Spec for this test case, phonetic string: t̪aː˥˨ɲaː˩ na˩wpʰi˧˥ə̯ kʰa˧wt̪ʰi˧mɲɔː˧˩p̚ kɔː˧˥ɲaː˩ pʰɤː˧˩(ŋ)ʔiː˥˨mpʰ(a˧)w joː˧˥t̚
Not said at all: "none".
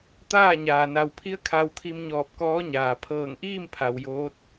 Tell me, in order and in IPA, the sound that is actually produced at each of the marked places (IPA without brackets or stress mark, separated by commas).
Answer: ŋ, a˩